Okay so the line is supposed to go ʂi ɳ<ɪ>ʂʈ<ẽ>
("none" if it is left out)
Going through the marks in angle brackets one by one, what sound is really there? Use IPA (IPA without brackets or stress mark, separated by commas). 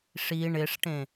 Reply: ɪ, ẽ